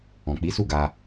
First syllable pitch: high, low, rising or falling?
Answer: low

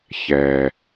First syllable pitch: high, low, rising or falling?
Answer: low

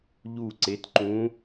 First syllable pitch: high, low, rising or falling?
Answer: falling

